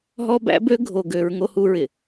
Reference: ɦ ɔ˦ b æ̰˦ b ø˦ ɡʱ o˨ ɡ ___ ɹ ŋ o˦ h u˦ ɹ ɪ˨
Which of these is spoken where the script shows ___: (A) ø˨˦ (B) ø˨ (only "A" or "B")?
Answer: A